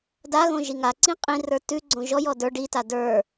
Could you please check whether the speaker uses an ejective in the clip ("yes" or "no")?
yes